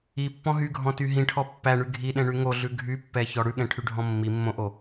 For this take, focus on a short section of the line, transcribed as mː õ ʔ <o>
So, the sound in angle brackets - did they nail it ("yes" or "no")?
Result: yes